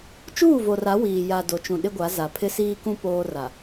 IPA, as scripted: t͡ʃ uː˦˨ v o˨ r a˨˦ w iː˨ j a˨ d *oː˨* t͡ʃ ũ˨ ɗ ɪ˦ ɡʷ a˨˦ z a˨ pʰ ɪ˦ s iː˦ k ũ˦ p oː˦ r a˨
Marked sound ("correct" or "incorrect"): incorrect